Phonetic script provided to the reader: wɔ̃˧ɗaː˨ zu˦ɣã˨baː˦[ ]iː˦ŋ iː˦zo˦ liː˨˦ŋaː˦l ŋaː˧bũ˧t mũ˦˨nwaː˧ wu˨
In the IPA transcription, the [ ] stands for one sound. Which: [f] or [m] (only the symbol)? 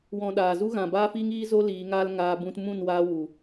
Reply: f